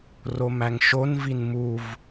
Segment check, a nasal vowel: absent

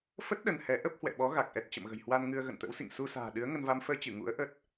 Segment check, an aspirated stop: absent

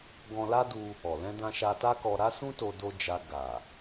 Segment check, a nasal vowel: present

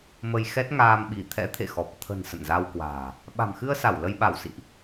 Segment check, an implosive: present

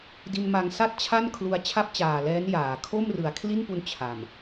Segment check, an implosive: absent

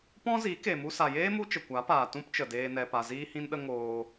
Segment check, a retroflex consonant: absent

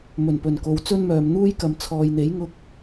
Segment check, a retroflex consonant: absent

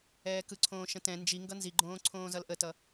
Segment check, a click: present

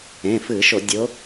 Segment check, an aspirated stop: absent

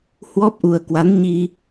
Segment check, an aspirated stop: absent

